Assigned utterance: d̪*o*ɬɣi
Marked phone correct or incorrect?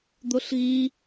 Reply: correct